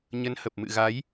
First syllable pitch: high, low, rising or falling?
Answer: rising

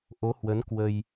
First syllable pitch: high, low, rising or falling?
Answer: rising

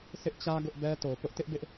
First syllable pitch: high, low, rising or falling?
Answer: high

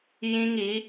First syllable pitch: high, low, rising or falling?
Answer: high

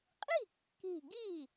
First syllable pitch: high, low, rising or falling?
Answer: falling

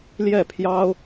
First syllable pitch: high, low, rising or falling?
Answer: falling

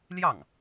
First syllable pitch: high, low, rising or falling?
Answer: falling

